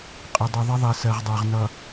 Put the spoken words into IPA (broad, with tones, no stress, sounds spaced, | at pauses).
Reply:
qʼ ə˨ dˤ ʊ˨ ðˤ ə˦ ðˤ ɜ˨ s ɜ˨ ʁ dˤ a˨ ʁ n ʌ˨